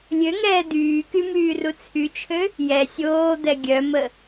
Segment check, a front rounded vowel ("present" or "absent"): present